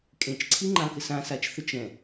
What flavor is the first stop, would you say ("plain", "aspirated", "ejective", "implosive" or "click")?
ejective